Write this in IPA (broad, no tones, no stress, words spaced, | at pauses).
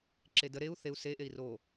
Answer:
ǁedə ɾeu̯ θeu̯ se ʔei̯ro